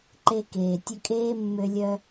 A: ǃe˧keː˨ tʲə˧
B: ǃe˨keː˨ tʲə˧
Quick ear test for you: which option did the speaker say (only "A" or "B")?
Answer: A